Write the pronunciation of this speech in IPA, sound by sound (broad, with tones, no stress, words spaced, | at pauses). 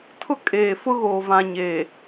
tʰʊ˦kʼeː˨fʊ˦ɣoː˨ vã˨ ɲeː˨